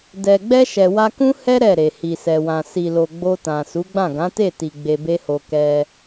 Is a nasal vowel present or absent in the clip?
present